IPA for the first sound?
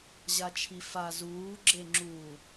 ʑ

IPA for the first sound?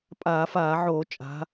pʼ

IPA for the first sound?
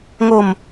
ŋ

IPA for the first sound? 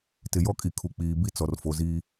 t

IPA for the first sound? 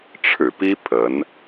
ʈ͡ʂʰ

